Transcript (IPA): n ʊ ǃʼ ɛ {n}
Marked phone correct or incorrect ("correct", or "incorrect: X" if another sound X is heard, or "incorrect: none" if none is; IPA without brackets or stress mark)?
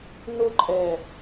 incorrect: none